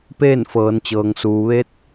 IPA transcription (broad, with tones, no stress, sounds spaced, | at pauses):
p eː˥˨ n f ɤː˩˧ n t͡ɕ ɤː˩ ŋ s uː˩ ʋ e˧˥ t̚